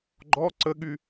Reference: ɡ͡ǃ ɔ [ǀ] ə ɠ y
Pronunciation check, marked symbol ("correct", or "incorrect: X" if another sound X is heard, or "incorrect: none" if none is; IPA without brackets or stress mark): correct